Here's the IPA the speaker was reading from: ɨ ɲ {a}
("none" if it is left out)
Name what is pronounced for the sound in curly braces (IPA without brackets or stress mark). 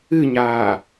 aː